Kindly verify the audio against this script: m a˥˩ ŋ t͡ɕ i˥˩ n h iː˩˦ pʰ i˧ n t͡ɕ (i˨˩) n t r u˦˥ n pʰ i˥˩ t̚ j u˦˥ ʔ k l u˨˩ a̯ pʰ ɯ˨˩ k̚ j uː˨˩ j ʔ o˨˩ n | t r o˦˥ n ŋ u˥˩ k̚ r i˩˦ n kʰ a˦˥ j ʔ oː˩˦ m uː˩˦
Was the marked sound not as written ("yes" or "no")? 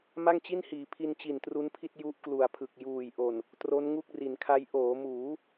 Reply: no